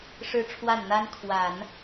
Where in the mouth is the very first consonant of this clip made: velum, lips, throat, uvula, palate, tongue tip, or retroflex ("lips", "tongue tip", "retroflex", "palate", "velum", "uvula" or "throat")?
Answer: retroflex